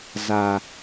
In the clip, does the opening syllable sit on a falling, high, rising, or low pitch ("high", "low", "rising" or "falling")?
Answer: low